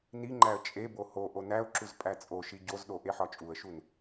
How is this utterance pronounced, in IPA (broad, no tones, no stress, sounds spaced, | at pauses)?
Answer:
n i ŋ͡ǃ æ ə̯ t͡ʃʼ e b o h o ʔ o n æ ʊ̯ ǁ u z pʼ æ t͡sʼ o ʃ i ɟ o z ɗ o ʔ e ħ ɒ t͡ʃʼ u ə̯ ʃ u n